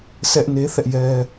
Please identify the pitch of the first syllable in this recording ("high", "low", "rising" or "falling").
high